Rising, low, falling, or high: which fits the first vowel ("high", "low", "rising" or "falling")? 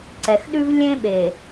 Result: low